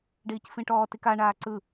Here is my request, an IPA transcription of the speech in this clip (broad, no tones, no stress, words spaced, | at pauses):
ɖiːcfĩʈɔː tika ɳaːǀɯ